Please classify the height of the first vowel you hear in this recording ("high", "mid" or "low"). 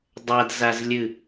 low